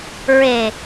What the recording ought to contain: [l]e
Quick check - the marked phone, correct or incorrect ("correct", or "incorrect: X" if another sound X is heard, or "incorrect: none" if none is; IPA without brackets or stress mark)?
incorrect: ɹ